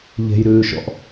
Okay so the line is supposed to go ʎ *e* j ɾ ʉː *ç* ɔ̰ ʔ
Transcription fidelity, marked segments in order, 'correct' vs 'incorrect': incorrect: e̤, incorrect: ʃ

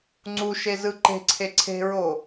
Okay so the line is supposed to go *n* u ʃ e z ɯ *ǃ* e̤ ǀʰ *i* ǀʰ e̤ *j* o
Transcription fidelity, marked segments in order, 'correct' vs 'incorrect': incorrect: ŋ͡ǀ, correct, incorrect: e, incorrect: ɹ

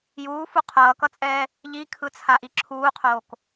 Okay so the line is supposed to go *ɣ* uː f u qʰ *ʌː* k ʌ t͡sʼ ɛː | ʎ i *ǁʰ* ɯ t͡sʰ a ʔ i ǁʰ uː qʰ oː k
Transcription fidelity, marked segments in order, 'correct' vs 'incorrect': incorrect: j, correct, incorrect: kʰ

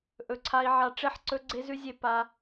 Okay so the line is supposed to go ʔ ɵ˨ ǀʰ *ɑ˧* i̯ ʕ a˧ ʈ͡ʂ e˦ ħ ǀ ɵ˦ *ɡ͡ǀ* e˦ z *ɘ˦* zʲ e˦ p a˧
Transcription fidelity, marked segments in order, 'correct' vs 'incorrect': incorrect: a˧, correct, incorrect: ʉ˦

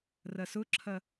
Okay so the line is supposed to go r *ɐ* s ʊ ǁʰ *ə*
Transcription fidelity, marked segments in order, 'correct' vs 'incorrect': correct, incorrect: ɐ

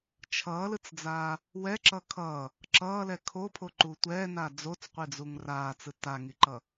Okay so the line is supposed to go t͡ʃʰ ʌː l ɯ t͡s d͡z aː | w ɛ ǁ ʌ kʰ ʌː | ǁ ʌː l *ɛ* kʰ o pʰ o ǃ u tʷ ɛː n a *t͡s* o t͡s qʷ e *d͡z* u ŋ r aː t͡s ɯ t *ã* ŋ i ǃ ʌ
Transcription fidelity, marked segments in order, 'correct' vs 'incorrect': correct, incorrect: d͡z, correct, incorrect: a

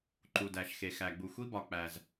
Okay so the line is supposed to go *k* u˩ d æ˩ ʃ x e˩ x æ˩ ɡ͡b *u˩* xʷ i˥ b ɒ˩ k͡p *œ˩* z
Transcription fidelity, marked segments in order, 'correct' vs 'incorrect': incorrect: ǃ, correct, incorrect: æ˩

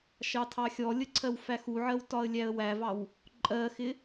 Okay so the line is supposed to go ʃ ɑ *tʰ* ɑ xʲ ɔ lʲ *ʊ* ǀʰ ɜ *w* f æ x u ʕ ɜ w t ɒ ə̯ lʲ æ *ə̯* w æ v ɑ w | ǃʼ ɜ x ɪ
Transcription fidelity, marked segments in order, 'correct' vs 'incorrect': correct, incorrect: ə, correct, correct

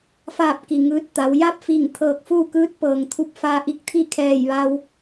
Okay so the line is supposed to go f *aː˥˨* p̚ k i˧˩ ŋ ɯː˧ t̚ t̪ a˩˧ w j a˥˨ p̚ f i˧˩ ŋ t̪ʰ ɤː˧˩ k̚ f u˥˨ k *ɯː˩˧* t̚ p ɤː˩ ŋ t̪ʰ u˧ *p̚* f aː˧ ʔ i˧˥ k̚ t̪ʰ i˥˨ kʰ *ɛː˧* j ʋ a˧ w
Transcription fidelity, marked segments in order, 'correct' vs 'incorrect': correct, incorrect: ɯː˧˥, correct, incorrect: ɛː˧˩

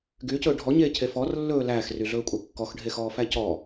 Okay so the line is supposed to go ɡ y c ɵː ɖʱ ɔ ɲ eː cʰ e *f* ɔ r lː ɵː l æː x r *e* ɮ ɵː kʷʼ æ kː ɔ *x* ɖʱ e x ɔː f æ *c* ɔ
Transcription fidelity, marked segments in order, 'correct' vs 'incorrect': correct, incorrect: y, correct, correct

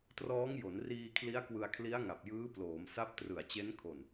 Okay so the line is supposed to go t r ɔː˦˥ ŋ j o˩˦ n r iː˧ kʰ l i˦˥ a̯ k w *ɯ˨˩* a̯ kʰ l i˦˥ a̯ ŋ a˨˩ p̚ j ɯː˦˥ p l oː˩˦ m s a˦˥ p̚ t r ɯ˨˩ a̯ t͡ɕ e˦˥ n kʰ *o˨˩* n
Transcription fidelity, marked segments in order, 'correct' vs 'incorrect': incorrect: ɯ˧, correct

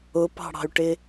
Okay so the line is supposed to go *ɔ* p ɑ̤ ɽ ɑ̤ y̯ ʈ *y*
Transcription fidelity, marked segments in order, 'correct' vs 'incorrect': incorrect: ʊ, incorrect: ɪ

